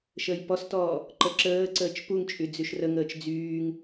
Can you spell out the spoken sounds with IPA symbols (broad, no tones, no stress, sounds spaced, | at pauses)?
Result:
ʃ əː j p ɔ s t ɔː | ǃ ə ǁ əː ǀ əː t͡ʃ p u ŋ t͡ʃʼ y d͡z y ʃ r ə ŋ əː t͡ʃ d͡z yː ŋ